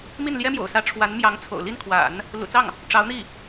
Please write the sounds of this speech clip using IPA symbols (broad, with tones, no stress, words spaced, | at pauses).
mi˥˩nljɛ˥ mjo̰˨˩ʊ̯sä˧˥ ʈ͡ʂʰwa˧˥nmjɑ˧˥ŋ t͡sʰo̰˨˩ʊ̯ li˥˩nkʰwa̰˨˩˦n | lṵ˨˩t͡sɑ˥˩ŋ | ʈ͡ʂɑ˧˥ʊ̯n̪i˥˩